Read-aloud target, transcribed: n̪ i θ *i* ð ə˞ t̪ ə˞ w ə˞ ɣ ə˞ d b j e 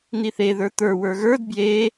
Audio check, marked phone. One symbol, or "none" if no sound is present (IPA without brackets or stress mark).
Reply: e